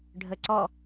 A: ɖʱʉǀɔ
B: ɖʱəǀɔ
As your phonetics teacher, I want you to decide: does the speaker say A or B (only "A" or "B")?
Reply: B